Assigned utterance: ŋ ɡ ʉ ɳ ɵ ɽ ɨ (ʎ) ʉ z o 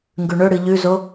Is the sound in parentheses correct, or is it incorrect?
correct